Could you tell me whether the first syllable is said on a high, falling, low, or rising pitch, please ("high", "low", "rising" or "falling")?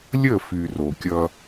falling